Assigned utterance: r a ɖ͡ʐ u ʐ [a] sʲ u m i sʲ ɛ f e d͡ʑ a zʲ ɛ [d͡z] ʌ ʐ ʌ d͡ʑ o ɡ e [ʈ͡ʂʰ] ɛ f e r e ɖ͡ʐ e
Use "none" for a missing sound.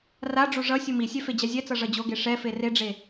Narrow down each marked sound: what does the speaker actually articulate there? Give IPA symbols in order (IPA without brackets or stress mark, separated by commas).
ʌ, t͡s, ʂ